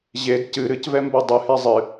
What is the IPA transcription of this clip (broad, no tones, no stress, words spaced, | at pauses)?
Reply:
ʑed cɨ ɾɨcvɛmbo dˤɨhe zˤɨ